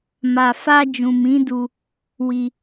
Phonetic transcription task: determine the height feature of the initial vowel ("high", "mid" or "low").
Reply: low